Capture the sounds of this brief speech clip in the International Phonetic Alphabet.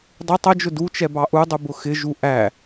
dˤɪ tˤəd͡ʒʊ dut͡ʃɛ bɑʔudˤu bʊxɪʒu ʔæ

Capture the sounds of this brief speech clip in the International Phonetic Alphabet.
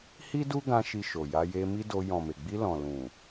hi˦du˦ɡã˧ ʃi˧ʃo˨ja˧ je˧mi˦do˧ jɔ̃˨me˨ɡ͡bi˧ lɔ̃˨lũ˨

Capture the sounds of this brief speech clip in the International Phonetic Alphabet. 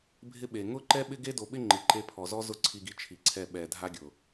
bʱɪ˦ɓe˨ ŋʊ˦ǃɛ˦ɓɪ˦ɡe˦ do˨ɓɪ˦ ŋ͡ǃɪ˨ǃe˧pʰɔ˨zɔ˦ zʊ˦ǀʰi˧ɡi˧ t͡ʃʰi˨ǀʰɛ˧ ɓɛ˨dʱa˦ɡʲʊ˨

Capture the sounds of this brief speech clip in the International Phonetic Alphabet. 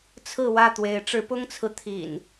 t͡sʰɹ̩˥˨wä˥˨t̪we˨˦ɪ̯ ʈ͡ʂɻ̩˨˦pʊ˦ŋt͡sʰɹ̩˨ t̪ʰḭ˨˩n

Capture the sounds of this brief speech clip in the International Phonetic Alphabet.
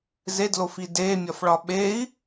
zedlofi demʲɒfɭɒ ɓei̯

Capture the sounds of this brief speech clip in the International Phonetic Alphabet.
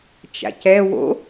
t͡ʃa̰cɛ wo̰

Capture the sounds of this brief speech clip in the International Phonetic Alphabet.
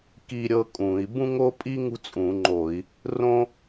ki˥ɾʲɤ˥kʼũ˧˩˧i̯ bũ˥ŋo˥pʼi˥ ŋṳ˥t͡sʼũ˧˩˧ŋ͡ǃo˧˩˧i̯ | rõ˥

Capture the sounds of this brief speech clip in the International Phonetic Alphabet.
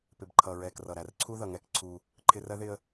pɪ˨bǃʰʌ˨ɹɛ˨krʌ˨ ɾæ˨rǀʰu˦ðʌ˨ŋɛ˦k ǀʰu˦ | ǃʰɪ˦r ɜ˦ðɪ˦ə̯

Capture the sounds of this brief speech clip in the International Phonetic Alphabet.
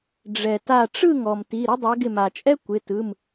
ɖ͡ʐɛ˩ta˧˩ ʈ͡ʂɯ˥˨ŋɔ˩m ti˩˧˩ɾɪ˥dˤɛ˨˦ ɡɪ˧˩ma˩t͡ʃʼɛ˥ kʷɪ˩˧˩tɯ˩˧˩m

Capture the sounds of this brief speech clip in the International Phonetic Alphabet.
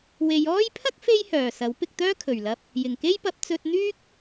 we˨˧jɔː˥j pʰɐ˥k̚ fe˥jhœː˨˩ sɐ˨˥wpɪ˧k̚t̪œː˥ kʰɵ˨˩ɥlɐ˧p̚ | jɪ˨˩ŋke˥jpɐ˨˥p̚ t͡sɵ˧t̚n̪yː˥k̚

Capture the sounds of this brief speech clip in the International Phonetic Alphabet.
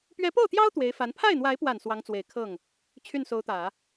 pɥɛ˧˥po˥˩ʊ̯t̪jɑ˥ʊ̯ t̪we˧˥ɪ̯fa˧˥n pʰa˥˩ɪ̯n̪wa˧˥ɪ̯pwa˨˩n swɑ˧˥ŋt͡swe˨˩ɪ̯ kʰɤ˥˩ŋ | t͡ɕʰy˥˩nso˧˥ʊ̯t̪ä˨˩˦

